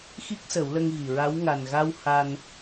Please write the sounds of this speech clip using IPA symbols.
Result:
x i˦˥ k̚ s ə˨˩˦ w l ə˧ ŋ ɣ i˨˩ ɹ a˧˥ w ŋ a˨˩ n ɣ a˧ w h a˧ n

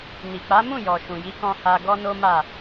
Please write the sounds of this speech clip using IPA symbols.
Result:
n i˨ k͡p a˨˦ m ũ˦˨ j ɔ˨ ʃ ũ˨ j i˨˦ k ɔ̃˧ h a˧ ɡ ɔ˦ n o˦ m a˦˨

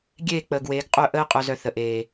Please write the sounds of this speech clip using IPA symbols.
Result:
ɡʲ eː˦˨ k͡p əː˨ ɡ w eː˨˦ ɡ qʼ œ˦˨ ʔ əː˦ qʼ œ˧ z œ˧ θ ə˨ ʔ eː˨

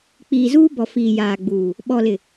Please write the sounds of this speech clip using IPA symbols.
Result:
k͡p iː˨ z uː˦ b ɔ˨ f iː˨ j aː˨ ɡ͡b uː˨ | ɓ ɔ˨ l ɪ˨

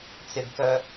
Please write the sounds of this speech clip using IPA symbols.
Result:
t͡s ɪ ɡ k œ

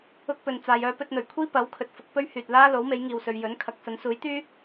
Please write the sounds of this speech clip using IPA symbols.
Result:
ʊ˥ k̚ p ɵ˨˧ n t͡s aː˧ j œː˥ p ɵ˧ t̚ n̪ ɵ˨˩ ɥ kʷʰ iː˥ p ɐ˨˥ w kʰ ɵ˨ t̚ f ʊ˨˥ k̚ p ɵ˥ ɥ h yː˨ t̚ l aː˥ l o˨˥ w m e˨˥ j ŋ iː˨ w s ɵ˨˧ ɥ j ɵ˨˥ n kʰ ɐ˨˥ k̚ s ɐ˨˥ n s uː˨˥ j t̪ yː˥

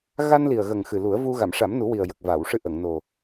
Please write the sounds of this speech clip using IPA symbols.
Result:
ɣ a˧ n l i˨˩ ə̯ ɣ ə˨˩ ŋ x ɨ˨˩ l u˨˩˦ ə̯ v u˧ ɣ a˨˩˨ m ʂ a˨˩˦ m n u˨˩˦ w i˨˩ ə̯ j ə˨˩ k̚ v a˨˩˨ w ʂ ɨ˧ ʔ ə˨˩˨ ŋ n o˨˩

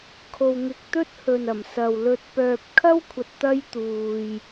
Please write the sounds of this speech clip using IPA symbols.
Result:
kʰ o˧ w ŋ ɪ˧ k̚ t̪ ɵ˥ t̚ h ɵ˨ n ɐ˨˩ m s ɐ˨ w l ɵ˧ t̚ p œː˨ p̚ kʰ ɐ˥ w kʷʰ ɐ˨ t̚ t̪ ɐ˥ j t̪ uː˧ j

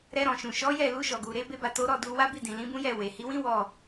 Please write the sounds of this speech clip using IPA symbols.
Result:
ɾ ɛ˧ ɾ ɔ̃˨ ʃ ũ˨ ʃ ɔ˨˦ j ɛ˦˨ l u˧ ʃ ɔ˨ ɡ u˨ ɾ e˨˦ b e˧ b a˨ t o˨˦ ɾ ɔ˦˨ d u˧ w a˦ b i˦˨ d ĩ˨ l ĩ˨˦ b ũ˦ j ɛ˦˨ w e˨ h i˨˦ w ĩ˦ w ɔ˦˨

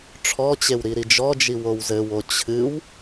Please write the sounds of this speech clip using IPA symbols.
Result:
ʈ͡ʂʰ ɔ t͡ɕ e w ɾ i ɾ i d͡ʒ ɔ d͡ʒ i w o w z ɘ w o t͡ɕʰ ɨ w

